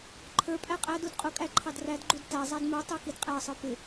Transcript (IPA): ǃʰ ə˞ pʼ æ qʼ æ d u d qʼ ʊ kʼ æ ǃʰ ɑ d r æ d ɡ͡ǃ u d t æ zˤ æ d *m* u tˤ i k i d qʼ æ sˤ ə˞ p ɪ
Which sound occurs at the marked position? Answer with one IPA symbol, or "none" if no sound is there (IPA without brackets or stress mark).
m